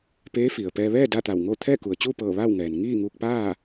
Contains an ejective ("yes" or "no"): no